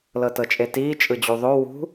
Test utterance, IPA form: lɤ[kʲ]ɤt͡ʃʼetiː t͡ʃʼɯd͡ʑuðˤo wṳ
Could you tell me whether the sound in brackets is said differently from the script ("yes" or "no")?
yes